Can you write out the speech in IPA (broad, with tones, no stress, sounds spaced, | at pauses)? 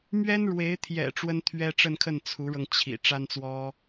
m ɥ ɛ˥ n ɻ w e˧˥ ɪ̯ t̪ʰ j ɛ̰˨˩ ʈ͡ʂ w ə˥ n t̪ʰ ɥ ɛ˥ ʈ͡ʂ ə˥˧ n kʰ ə˥˩ n t͡sʰ u˧˥ ɻ ɤ˧ ŋ t͡ɕʰ ḭ˨˩ ʈ͡ʂ a˥ n t͡s w ɔ˥